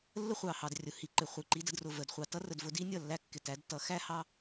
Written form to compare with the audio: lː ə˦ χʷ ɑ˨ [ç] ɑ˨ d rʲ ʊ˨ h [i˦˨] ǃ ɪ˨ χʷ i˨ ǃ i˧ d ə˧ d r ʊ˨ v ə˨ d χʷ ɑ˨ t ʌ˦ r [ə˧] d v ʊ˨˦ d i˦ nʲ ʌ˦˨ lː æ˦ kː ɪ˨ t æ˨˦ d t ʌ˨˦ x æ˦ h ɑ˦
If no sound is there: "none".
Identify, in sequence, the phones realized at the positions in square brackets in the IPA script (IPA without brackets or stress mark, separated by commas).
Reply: h, i˨, ə˨